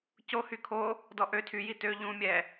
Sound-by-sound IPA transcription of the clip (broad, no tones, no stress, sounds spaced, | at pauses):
c o h y kʰ o | d ɔ ʔ ø tʰ y j i t ø ʎ ũ mʲ ɛ